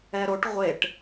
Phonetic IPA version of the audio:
ɛ ɾ o ʈ ʁʷ e ʈ

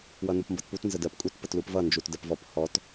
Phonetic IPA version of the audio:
w ʌ n u p m b ʌ t p u t n z ə d ɜ p kʼ u t p ə t l u p v ʌ n d͡ʒ u t d ɜ p v ɔ p h ɔ t

